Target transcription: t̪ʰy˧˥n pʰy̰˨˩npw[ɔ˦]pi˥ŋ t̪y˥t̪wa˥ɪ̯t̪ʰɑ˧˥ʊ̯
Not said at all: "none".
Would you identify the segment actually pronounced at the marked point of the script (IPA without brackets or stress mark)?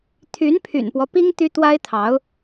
ɔ˦